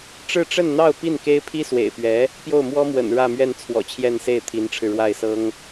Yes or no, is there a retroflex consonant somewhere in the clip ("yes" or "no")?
yes